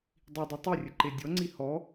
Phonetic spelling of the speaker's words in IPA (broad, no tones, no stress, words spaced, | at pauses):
dˤidˤʉ tˤerʲəǃe dʲɔŋ͡ǀi hɔ